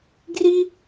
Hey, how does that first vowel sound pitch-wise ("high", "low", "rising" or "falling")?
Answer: high